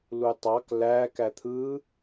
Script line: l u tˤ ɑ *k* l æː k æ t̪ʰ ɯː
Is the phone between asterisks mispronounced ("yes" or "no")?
no